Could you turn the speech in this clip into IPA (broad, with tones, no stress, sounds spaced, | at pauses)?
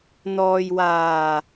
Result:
n̪ ɔː˨ j w aː˨˩